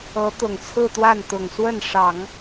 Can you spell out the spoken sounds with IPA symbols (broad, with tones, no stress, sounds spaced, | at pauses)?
ɤ˧˥ t̪ ʊ˨˩ ŋ t͡sʰ ɹ̩˥˧ t̪ w a˥˩ n t̪ ʊ˨˩ ŋ s w ə˥˩ n ʂ ɑ˨˩˦ ŋ